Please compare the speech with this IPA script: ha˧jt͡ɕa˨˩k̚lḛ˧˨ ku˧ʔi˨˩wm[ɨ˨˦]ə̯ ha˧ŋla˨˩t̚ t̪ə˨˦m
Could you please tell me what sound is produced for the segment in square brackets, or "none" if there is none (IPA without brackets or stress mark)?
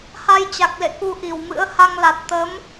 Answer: ɨ̰˧˥